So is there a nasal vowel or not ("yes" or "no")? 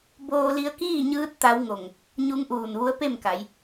no